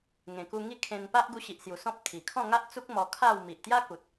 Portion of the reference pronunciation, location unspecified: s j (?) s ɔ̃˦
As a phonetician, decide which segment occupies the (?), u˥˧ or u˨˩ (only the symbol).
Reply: u˨˩